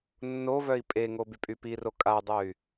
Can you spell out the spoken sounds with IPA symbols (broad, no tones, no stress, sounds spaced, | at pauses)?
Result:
nː o v œ i̯ pʼ e ŋ o b y pʼ y p i r o kʼ a dˤ œ y̯